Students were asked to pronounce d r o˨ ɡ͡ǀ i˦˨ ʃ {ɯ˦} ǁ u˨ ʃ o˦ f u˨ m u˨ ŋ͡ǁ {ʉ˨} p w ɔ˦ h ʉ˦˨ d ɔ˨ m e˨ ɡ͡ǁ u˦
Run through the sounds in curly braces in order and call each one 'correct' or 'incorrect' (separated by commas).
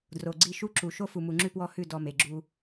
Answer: incorrect, incorrect